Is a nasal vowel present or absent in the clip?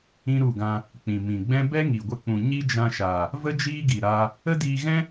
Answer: present